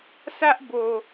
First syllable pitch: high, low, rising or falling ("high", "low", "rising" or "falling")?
high